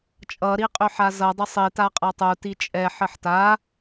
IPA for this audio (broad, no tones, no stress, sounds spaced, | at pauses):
t͡ʃʼ ʌ ɾ i qʼ ʏ ħ a z ʌ dˤ ə sˤ i t a qʼ a tˤ u t i t͡ʃʼ ɛ ħ ə ħ t a